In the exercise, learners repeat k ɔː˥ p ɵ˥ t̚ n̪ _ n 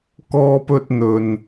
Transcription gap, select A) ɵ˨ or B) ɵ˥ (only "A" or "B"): A